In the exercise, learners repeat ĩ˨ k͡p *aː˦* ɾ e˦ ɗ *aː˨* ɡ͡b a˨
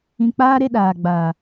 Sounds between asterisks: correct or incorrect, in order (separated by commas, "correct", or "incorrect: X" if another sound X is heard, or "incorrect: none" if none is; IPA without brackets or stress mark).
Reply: correct, correct